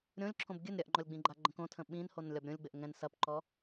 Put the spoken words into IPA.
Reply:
ɾʲ õ lʲ ǁʰ õ b ɡʲ ɨ n ɾʲ ɐ ʔ ŋ͡ǃ ɔ lʲ ɡ͡b ĩ ɡ͡ǃ a ɡ͡ǃ ə̃ k õ tʰ ə̃ ɓ ĩ n h o n lʲ ɒ b ɾʲ õ lʲ ɡ͡b ɘ ʔ ŋ ɛ̃ n s ɐ p ǃ ɔ

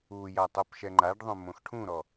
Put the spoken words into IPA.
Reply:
u j a tˤ o p ʃ ɛ ŋ͡ǃ a ɖ ðˤ õ m õ x ʈʰ ũ ɾ ɔ

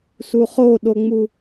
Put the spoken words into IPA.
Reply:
s u χ o ɗ o ŋ͡m u

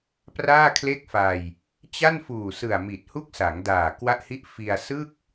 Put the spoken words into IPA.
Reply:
p r aː˥˩ kʰ l e˥˩ k̚ f a˧ j | t͡ɕ a˥˩ n f uː˨˩ s ɯ˨˩ a̯ m i˨˩ t̚ h u˥˩ k̚ s a˩˦ ŋ d aː˨˩ k w a˥˩ ʔ h i˥˩ ʔ f i˧ a̯ s ɯ˥˩ k̚

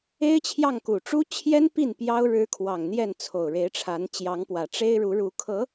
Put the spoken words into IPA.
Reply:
e˥ ɪ̯ t͡ɕʰ j ɑ˥˩ ŋ k u˨˩ ʈ͡ʂ u˥ t͡ɕʰ j ɛ˥ n p i˥˩ n p j ɑ˥ ʊ̯ ɻ ɻ̩˧˥ kʰ w ɑ˨˩ ŋ n̪ j ɛ˥˩ n t͡sʰ o˨˩ ʊ̯ ɻ e˧˥ ɪ̯ ʈ͡ʂʰ a˧˥ n t͡ɕ j ɑ˧˥ ŋ p w ä˨˩ ʈ͡ʂ e˥ ɪ̯ ɻ u˧˥ ɻ u˧˥ kʰ ɤ˧˥

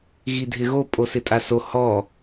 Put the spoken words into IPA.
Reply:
ɣ i dʱ ɪ ɣ o pʼ o s ɪ tʼ a s o h ɔ

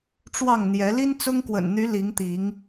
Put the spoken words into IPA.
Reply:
ʈ͡ʂ w ɑ˥˨ ŋ n̪ j ɛ˨˦ l i˦ n t͡s ʊ˦ ŋ k w ə̰˨˩ n n̪ y˨˦ l i˨˦ ŋ t̪ i˨˦ ŋ

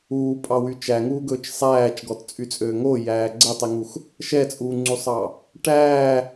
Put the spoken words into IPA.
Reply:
uː pʼ ɑ w y t͡ʃ æ ŋ uː ɡ ɵː t͡ʃ sˤ æː t͡ʃ ɡ ɔ t t͡sʼ y t͡sʼ øː ŋ o j æː ɡ͡ǀ ɛ tˤ i ŋ u x | ʃ ɛ t͡sʼ uː ŋ͡ǀ u sˤ ɑ | ʈ æː

